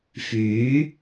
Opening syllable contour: rising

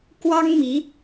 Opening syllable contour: high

